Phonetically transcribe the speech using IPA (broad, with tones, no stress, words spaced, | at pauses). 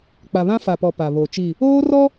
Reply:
k͡pa˨βã˦fa˨pɔ˨ pa˨ βo˨t͡ʃi˦˨ | oː˦rɔ˦